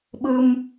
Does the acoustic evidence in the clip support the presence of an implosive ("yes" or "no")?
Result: yes